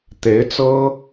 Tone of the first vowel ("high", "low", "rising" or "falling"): rising